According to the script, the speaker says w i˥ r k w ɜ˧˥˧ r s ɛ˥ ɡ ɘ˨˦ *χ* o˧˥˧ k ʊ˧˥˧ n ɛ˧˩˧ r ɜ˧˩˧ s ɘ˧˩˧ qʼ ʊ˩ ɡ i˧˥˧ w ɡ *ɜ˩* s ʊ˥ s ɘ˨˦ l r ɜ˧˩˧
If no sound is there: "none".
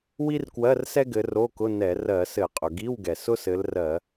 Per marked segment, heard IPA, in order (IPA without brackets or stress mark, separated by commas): r, ɛ˩